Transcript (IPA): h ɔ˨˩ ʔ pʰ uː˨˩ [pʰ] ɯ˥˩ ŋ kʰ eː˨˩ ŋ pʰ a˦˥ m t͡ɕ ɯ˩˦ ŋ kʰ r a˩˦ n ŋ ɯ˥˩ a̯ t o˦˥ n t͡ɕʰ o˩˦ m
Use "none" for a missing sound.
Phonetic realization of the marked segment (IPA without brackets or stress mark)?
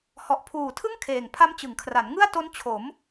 tʰ